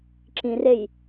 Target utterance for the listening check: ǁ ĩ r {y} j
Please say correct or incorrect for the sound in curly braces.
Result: incorrect